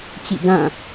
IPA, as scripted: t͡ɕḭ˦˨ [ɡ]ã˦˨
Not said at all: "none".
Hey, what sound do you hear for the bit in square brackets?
ɡ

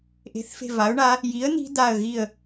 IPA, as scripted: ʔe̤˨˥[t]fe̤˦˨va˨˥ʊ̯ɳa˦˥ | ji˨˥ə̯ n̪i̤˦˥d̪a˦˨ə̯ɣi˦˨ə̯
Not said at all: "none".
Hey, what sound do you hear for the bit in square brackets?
θ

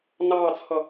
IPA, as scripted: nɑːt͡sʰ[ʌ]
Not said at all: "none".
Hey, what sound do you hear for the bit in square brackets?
ʌ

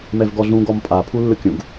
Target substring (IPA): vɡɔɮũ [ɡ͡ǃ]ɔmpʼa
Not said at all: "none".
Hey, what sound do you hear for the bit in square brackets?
ɡ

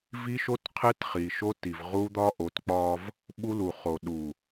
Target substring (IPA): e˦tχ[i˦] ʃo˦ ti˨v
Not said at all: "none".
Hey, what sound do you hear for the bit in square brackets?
i˨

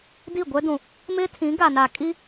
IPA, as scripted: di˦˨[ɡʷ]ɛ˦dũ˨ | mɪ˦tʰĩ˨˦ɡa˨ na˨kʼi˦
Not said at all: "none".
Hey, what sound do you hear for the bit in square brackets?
ɡʷ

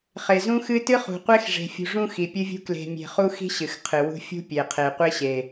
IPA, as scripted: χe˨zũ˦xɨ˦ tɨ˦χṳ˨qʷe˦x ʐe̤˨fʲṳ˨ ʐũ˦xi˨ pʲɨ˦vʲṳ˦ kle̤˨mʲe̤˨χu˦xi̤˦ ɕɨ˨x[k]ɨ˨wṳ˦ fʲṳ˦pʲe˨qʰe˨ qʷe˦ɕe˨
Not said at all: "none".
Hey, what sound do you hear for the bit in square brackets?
qʰ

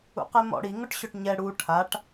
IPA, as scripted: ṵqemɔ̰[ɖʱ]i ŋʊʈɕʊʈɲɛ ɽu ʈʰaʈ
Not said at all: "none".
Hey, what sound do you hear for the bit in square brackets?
ɽ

